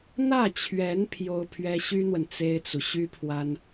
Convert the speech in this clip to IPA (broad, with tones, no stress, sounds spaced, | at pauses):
n̪ ä˥˩ t͡ɕʰ ɥ ɛ˧˥ n pʰ j o˥ ʊ̯ pʰ ɥ ɛ˥ ɕ y˥ n̪ w ə˨ n t͡s e˥ ɪ̯ t͡s u˨ ɕ y˥ pʰ w a˥ n